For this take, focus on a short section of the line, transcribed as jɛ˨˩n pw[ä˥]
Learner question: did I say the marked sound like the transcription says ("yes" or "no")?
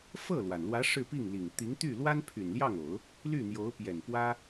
yes